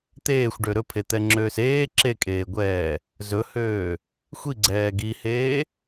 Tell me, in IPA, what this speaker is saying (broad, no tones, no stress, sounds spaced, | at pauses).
t̪ eː xʷ ɖ ø ɾ ɵ pʰ e t̪ ɛ ŋ͡ǁ øː s eː ǁ e kʼ eː ɡʷ ɛː | z ɵ h øː | xʷ i ɡ͡ǀ ɛː ɡ i h eː